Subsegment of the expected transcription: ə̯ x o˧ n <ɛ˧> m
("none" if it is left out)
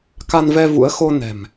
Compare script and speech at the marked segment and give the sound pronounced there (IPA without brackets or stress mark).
ɛ̤˨˩